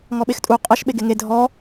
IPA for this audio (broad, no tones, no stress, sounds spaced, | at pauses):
ŋ ɔ ɓ e x tʼ u qʼ ə ʃ ɓ e ɡ e ŋ e dʱ ɔ